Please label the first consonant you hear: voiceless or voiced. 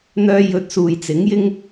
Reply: voiced